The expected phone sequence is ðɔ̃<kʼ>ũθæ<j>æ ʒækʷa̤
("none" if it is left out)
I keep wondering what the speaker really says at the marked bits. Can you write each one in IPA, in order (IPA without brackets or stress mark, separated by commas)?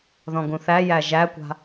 ɡ, j